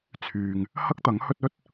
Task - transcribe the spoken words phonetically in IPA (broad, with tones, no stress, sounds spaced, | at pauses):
t͡sʰ yː˨ ŋ | h ɐ˥ k̚ t̪ ɐ˨˥ ŋ h ɵ˥ t̚ ɵ˥ t̚